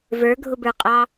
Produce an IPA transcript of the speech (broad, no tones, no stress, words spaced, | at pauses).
və˞ɡʱʊbə˞qʼɑ